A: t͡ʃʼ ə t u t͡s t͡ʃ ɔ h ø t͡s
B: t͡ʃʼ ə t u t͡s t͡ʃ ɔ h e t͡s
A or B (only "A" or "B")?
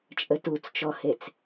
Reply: B